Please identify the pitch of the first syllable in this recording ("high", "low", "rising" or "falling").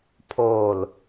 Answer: low